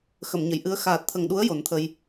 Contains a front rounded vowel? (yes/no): no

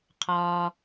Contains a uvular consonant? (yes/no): yes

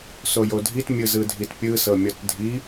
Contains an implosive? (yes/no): no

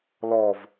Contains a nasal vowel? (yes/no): no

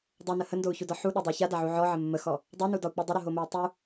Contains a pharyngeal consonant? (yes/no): yes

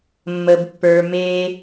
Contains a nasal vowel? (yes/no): no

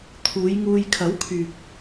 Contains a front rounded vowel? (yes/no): yes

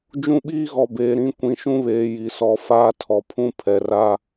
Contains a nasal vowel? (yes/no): yes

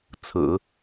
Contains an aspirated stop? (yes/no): yes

